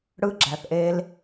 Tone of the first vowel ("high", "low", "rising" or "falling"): high